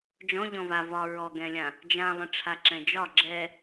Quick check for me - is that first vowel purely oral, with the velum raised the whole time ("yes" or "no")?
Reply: no